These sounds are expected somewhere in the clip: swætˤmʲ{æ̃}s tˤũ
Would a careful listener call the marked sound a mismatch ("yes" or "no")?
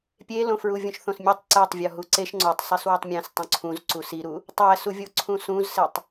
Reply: no